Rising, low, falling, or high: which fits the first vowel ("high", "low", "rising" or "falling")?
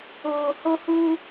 low